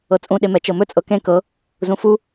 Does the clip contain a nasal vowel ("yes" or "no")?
yes